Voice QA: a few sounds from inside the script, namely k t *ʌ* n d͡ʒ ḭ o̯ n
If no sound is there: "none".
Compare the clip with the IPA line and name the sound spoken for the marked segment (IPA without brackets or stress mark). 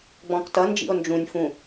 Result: ʌ